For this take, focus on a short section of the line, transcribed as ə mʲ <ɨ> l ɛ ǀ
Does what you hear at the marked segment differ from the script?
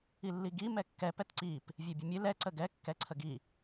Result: no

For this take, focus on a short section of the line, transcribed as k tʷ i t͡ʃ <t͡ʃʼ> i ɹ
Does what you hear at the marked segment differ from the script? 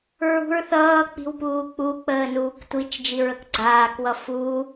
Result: yes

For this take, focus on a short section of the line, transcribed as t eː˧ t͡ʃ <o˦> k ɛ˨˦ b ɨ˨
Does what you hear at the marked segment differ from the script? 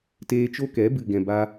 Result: no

